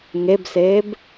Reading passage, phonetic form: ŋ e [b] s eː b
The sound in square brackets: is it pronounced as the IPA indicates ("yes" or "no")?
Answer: yes